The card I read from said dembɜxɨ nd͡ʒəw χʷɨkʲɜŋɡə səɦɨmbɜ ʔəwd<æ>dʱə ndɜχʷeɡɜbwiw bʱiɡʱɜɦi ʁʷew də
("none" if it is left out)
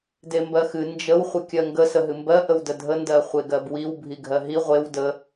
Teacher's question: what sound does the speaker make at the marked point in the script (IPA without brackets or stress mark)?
ə